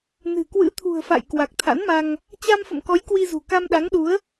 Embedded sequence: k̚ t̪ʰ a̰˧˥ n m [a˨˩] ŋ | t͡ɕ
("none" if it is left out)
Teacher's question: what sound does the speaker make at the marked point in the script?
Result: a˧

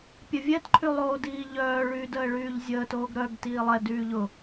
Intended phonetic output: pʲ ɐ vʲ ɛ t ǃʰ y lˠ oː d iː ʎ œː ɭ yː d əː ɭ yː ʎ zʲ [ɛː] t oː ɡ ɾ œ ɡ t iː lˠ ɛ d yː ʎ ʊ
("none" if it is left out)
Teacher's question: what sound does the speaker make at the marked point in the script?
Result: əː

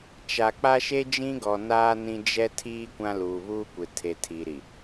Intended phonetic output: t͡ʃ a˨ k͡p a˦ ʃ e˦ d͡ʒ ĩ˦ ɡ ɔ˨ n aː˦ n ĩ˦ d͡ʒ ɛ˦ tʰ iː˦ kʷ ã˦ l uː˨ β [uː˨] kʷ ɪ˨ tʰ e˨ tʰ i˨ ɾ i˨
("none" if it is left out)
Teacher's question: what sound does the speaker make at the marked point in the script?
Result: uː˦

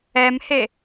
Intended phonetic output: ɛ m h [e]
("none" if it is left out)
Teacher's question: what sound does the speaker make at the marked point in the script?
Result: e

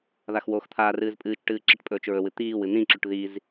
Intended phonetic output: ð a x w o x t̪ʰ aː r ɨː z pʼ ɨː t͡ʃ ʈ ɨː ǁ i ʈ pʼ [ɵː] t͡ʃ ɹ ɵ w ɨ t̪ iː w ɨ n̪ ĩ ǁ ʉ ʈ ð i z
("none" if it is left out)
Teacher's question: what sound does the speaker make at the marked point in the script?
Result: ɵː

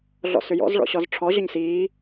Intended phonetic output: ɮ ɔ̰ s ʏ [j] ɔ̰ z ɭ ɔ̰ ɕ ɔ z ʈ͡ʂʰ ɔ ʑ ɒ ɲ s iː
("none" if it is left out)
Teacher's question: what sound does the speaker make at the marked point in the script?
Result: j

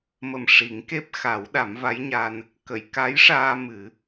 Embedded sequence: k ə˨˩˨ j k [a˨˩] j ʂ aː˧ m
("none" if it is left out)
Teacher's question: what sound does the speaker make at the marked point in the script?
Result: a˧˥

